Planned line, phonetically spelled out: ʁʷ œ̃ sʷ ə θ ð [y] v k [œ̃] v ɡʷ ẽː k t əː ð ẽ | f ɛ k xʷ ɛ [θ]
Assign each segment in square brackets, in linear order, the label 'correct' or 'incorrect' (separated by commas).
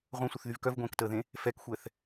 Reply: correct, incorrect, correct